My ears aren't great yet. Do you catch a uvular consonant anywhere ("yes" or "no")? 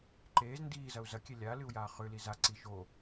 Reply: yes